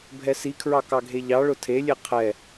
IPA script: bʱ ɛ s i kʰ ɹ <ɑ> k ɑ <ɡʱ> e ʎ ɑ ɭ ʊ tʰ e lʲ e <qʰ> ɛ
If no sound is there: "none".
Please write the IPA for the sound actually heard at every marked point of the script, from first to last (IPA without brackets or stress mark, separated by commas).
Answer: ɑ, ɡʱ, qʰ